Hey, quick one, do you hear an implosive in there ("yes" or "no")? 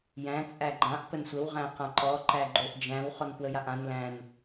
no